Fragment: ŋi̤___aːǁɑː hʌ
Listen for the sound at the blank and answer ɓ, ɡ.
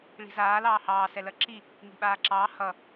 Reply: ɓ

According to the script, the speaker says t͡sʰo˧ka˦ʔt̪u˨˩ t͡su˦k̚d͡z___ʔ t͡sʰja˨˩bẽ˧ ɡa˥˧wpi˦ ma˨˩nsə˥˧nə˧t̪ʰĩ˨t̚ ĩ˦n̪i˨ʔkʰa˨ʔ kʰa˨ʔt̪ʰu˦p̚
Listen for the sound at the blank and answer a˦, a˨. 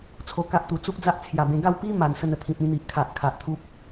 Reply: a˦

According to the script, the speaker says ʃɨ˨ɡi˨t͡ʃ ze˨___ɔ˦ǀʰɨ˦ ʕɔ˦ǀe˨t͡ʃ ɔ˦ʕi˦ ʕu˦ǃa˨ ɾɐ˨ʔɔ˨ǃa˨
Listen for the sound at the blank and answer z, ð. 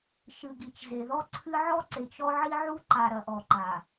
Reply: ð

